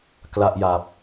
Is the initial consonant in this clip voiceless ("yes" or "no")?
yes